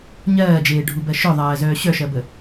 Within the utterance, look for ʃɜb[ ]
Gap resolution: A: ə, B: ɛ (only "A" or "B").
A